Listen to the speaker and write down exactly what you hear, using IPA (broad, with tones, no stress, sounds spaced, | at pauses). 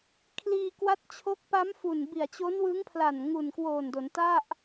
kʰ l iː˧ k w a˦˥ t̚ t͡ɕʰ o˦˥ k̚ p a˦˥ m f u˨˩ n b i˨˩ a̯ t͡ɕ o˦˥ n w ɯ˦˥ ŋ pʰ l a˨˩ n ŋ u˨˩ n k w oː˨˩ n d o˩˦ n t a˥˩ ʔ